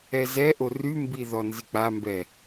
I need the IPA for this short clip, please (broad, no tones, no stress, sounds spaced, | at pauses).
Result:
ɛ z ɛ ʔ o r y m b i ð ɔ n z i k͡p a m b ɛ